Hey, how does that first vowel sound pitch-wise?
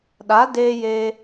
rising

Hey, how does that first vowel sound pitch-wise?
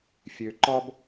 low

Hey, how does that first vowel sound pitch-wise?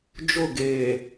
falling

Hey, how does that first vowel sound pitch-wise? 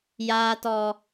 high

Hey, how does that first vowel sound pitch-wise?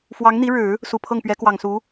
rising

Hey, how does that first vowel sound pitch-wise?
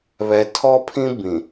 low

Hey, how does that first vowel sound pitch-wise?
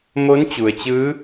rising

